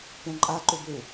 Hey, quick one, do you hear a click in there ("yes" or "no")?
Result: yes